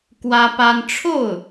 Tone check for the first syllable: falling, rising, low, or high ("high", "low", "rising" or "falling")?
high